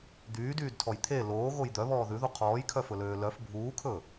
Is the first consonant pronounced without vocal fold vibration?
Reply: no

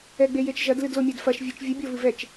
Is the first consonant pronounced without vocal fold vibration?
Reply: no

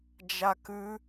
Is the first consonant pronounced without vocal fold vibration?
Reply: no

